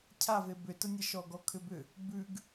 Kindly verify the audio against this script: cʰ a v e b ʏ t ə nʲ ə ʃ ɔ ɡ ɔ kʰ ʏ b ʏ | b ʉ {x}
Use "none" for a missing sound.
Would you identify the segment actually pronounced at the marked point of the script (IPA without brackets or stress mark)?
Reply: ɡ